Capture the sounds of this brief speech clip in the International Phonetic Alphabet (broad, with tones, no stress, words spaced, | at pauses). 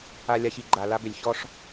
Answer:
a˨lʲa˨çi˨ ɡ͡ǃa˨la˦bʏ˨lʲ çɔ˦ʂ